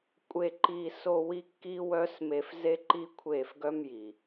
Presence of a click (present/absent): present